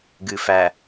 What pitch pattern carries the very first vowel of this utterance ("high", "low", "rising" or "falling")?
low